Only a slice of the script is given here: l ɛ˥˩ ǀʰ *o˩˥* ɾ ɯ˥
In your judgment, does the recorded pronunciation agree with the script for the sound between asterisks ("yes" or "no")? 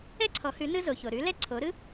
yes